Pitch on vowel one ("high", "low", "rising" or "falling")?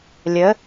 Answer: rising